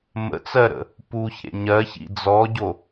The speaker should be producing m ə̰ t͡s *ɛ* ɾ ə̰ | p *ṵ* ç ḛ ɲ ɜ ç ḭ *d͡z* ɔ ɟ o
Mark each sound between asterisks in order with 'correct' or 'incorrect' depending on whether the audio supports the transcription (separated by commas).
incorrect, incorrect, correct